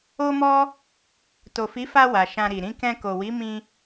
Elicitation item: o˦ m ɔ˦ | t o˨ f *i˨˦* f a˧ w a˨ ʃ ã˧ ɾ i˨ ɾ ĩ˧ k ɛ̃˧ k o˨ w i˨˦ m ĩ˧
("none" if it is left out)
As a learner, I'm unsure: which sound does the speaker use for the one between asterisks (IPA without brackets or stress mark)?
i˨˦